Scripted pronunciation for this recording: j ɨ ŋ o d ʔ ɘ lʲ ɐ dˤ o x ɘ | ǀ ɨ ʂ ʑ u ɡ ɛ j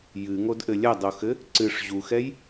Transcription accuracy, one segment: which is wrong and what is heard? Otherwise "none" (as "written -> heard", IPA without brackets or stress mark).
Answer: ɡ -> x